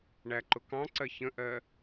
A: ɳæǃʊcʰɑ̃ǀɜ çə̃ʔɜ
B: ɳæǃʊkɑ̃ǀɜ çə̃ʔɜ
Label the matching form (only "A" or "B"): B